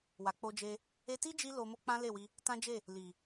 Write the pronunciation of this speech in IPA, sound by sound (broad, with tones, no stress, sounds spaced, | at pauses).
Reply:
w a˨ k͡p o˧ d͡ʒ e˧ | e˧ t i˦ d͡ʒ i˦ l o˧ m o˦ k͡p ã˦ l e˦˨ w i˧ | t ã˦ d͡ʒ e˦˨ | l i˨